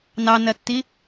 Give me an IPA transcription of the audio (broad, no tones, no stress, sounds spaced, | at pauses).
n ɑ n ɜ tː i